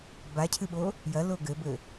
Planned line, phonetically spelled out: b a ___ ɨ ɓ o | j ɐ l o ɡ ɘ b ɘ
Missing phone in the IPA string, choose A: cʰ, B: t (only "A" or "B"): A